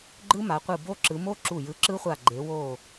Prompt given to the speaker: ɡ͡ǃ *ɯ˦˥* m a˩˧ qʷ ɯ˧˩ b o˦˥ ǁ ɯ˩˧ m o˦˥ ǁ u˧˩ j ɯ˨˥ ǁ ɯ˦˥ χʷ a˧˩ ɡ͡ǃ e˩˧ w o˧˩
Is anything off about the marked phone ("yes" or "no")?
no